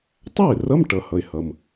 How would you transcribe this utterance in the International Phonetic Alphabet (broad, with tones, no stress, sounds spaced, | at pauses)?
tˤ æ˥˩ ɪ̯ r ʌ˧˥˧ m ʈ ʌ˩ h ʌ˩ ɪ̯ h ʌ˩ m